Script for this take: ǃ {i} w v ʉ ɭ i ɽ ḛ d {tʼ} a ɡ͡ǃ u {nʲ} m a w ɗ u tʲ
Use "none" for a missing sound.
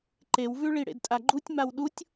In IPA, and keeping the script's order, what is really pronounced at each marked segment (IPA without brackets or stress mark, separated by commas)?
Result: e, tʼ, tʲ